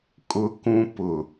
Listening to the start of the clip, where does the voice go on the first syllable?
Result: high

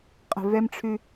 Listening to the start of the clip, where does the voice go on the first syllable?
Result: low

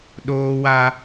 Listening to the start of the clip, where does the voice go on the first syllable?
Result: high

